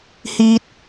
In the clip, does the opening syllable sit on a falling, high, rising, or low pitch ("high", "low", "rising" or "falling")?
high